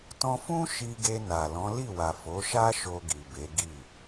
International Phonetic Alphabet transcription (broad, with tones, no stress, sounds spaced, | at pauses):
t ɔ̃˧ f ũ˦ ʃ i˧ ɡ e˧ n a˨ l ɔ̃˨˦ l i˦˨ w a˨ f o˨˦ ʃ a˦ ʃ o˧ ɡ i˨ b e˨˦ ɡ i˦˨